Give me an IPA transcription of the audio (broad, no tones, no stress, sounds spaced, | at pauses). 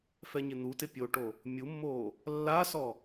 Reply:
f ɛ ɲ ɪ n̪ u t ɪ pʲ o ʈ o | mʲ u mː oː | lː a s ɔ